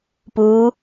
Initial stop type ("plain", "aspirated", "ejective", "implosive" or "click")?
plain